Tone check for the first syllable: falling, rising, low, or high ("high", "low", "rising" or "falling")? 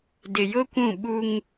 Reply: low